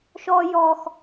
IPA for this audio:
ʃɔː˦jɔː˦x

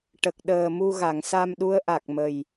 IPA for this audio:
ʈə˨˩k̚ɗəː˨˩mu˧ ɣa˨˩˨ŋsa˧mɗu˧˥ə̯ ʔa˨˩k̚mə˨˩j

